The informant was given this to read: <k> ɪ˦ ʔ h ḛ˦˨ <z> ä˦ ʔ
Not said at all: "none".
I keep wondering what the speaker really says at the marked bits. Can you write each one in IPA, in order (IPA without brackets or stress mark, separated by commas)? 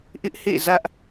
ʔ, z